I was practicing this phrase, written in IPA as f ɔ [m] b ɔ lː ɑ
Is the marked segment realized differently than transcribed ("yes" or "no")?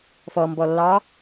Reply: no